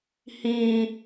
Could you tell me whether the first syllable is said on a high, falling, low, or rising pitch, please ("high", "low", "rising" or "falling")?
low